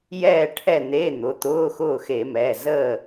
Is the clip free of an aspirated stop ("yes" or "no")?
no